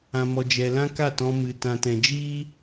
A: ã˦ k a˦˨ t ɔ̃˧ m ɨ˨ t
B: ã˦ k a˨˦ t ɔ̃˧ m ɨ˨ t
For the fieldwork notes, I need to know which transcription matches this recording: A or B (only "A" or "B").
A